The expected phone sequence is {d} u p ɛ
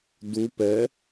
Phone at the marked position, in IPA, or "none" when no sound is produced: d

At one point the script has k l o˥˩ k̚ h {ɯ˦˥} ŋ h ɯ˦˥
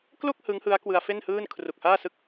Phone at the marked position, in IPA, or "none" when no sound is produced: ɯ˦˥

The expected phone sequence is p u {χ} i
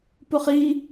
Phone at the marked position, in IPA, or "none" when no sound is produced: χ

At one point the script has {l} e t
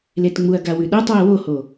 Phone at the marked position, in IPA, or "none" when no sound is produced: l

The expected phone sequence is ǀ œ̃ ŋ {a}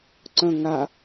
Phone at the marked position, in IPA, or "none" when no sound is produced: a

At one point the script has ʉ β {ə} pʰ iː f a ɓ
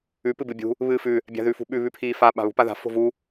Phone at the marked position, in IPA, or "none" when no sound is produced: ʉ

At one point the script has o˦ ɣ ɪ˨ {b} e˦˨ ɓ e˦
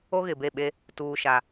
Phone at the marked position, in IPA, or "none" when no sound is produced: b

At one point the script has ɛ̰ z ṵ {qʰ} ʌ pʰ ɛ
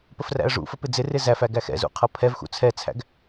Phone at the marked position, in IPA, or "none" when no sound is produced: qʰ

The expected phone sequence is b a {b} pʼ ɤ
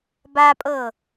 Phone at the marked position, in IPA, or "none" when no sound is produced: none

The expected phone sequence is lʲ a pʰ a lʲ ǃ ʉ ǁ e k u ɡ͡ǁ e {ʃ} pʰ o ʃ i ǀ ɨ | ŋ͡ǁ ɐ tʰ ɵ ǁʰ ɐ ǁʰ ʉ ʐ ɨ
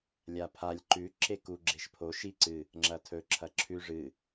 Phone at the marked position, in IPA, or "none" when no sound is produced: ʃ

